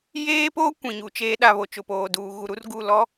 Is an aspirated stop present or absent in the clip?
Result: absent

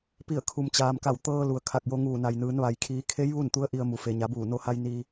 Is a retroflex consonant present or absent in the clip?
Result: absent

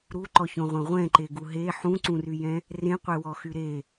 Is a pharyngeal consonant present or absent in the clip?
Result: present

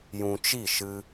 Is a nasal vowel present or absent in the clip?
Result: present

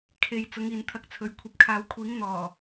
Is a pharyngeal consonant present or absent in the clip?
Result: absent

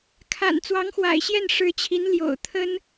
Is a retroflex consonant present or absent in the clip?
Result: present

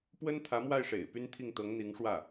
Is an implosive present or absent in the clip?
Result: absent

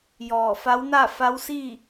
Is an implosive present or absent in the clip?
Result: absent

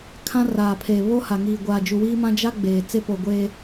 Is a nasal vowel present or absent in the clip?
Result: present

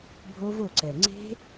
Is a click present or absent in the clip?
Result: present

